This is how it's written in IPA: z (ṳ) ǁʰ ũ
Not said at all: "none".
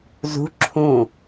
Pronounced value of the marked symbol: ṳ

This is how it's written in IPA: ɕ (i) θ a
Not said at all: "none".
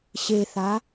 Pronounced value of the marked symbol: e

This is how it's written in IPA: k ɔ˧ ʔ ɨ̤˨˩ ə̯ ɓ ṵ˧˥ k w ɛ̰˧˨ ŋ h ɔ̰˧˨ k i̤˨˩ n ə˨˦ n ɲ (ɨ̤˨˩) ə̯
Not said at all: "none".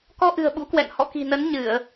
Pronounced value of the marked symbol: ɨ˧˩˨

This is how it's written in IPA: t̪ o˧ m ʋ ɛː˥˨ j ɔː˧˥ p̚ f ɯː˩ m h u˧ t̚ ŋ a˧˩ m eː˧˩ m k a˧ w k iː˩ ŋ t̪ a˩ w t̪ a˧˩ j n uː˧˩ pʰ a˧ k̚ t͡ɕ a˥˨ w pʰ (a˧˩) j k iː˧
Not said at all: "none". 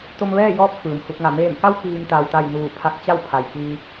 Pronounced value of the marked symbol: a˩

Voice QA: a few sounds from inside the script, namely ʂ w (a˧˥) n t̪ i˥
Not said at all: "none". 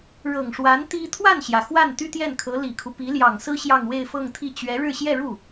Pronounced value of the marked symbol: a˧˥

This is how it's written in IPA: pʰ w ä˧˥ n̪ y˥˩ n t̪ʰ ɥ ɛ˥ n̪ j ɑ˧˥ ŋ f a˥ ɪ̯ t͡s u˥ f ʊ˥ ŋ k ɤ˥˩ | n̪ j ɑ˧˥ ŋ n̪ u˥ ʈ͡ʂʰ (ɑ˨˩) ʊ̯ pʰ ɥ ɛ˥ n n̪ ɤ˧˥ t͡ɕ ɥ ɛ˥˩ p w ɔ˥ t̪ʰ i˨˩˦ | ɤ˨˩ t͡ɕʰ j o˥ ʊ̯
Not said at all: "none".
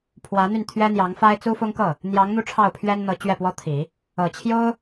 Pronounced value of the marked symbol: ɑ˥˩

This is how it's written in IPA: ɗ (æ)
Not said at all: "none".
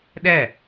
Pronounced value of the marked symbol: æ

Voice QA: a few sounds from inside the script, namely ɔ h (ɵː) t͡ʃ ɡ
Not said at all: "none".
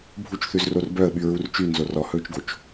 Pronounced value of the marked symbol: ɵː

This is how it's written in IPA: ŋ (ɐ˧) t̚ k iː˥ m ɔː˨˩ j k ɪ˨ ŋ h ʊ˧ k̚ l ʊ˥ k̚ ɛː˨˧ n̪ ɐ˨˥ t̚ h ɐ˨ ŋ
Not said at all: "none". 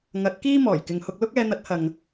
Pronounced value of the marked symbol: ɐ˨˥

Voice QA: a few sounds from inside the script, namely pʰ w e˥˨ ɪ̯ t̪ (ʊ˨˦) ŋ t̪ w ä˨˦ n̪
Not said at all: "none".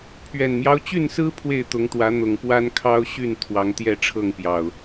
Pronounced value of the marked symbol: ʊ˨˦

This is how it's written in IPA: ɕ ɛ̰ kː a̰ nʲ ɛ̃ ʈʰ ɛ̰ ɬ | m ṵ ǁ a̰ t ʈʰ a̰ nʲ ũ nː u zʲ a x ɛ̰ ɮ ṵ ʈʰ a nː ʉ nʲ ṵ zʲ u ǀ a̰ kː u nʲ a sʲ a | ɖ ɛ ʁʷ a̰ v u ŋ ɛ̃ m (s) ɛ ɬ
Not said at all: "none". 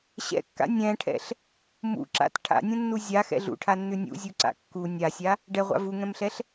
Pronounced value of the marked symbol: ɬ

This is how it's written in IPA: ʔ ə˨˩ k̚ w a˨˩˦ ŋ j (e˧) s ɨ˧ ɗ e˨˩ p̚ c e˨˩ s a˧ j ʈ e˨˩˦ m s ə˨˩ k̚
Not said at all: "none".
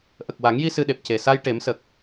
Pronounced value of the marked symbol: i˧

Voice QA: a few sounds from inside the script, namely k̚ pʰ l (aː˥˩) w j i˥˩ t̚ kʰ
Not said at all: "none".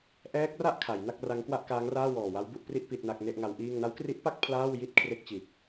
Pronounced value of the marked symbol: aː˥˩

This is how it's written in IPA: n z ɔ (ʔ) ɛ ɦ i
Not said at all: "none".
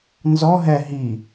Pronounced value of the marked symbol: ɦ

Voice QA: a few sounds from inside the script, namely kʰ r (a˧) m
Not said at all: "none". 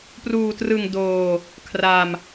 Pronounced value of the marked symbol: a˧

